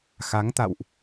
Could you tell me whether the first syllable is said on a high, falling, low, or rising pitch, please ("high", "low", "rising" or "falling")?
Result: rising